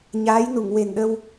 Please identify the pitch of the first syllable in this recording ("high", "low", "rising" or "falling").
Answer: rising